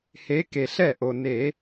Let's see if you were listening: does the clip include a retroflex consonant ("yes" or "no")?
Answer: no